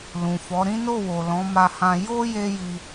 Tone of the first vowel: low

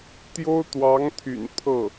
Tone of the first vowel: high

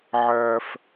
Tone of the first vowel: low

